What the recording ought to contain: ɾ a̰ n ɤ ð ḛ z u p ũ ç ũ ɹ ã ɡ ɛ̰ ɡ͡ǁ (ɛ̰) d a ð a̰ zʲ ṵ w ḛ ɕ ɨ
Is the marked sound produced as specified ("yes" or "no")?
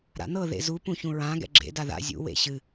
no